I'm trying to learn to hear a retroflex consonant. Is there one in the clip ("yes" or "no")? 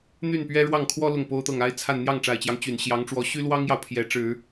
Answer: yes